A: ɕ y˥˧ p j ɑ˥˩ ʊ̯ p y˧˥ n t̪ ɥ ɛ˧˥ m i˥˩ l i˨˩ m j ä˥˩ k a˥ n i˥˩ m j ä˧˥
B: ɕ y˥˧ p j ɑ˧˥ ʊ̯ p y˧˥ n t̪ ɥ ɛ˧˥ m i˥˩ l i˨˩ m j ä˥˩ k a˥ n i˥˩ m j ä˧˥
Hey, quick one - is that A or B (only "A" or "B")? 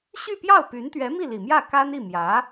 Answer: A